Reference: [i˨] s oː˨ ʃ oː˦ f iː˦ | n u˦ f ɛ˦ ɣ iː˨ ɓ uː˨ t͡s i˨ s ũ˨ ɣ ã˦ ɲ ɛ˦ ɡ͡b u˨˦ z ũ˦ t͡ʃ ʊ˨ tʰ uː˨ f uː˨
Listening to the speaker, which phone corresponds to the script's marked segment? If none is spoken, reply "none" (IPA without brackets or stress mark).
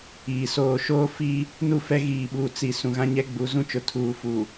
iː˨